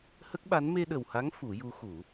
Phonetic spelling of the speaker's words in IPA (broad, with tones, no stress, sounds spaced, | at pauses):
h ə˦˥ k̚ ɓ a˧˥ n m e˧ ɗ ə˨˩ w h a˧˥ ŋ f u˨˩˦ j u˧˥ x u˨˩˦